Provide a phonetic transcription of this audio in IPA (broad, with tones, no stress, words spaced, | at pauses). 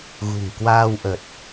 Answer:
ɣṳ˨˩ŋkwaː˧wʔə˨˩t̚